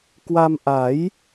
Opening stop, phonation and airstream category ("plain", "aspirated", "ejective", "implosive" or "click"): plain